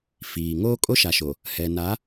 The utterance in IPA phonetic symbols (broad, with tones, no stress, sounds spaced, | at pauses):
f iː˨ ŋ oː˦ kʼ o˦ ʃ a˨ ʃ o˨ | h ɛ˨ n a˨˦